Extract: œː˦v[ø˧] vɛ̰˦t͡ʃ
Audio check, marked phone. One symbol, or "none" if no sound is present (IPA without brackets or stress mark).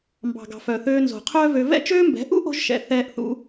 ø˧